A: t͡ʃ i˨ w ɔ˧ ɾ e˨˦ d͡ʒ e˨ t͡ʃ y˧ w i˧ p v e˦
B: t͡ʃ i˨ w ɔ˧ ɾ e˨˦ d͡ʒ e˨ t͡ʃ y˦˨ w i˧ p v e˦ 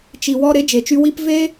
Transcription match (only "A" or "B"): A